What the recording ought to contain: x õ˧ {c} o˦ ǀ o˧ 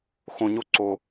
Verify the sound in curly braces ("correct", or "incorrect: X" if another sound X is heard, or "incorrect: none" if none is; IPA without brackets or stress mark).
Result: incorrect: ɲ